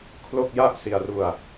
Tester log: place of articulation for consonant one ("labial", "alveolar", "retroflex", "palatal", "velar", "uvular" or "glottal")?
velar